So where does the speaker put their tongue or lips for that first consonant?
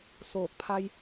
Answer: tongue tip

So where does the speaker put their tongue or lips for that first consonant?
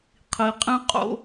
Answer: uvula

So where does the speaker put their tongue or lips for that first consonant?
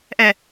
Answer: throat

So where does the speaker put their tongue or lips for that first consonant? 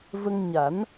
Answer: lips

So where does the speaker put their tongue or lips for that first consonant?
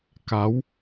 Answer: velum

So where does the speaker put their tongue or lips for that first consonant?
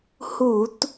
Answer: throat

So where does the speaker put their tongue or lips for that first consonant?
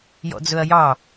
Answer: palate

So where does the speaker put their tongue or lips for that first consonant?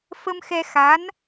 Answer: lips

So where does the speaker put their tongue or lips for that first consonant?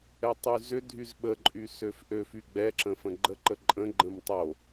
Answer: tongue tip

